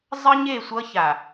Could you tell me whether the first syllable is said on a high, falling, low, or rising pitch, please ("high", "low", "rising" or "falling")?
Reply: high